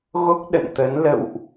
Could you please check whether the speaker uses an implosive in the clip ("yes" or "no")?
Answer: yes